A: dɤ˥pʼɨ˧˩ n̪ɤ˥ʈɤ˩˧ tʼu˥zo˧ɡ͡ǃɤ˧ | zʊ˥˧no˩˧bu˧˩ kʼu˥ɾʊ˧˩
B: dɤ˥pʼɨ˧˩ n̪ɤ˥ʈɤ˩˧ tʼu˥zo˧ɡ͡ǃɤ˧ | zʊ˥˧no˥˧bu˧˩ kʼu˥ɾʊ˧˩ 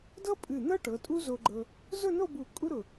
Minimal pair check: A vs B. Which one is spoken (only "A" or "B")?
B